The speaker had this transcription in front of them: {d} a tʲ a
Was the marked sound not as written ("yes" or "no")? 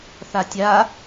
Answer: yes